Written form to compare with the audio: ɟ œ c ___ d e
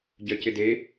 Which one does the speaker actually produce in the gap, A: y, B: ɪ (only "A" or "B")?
B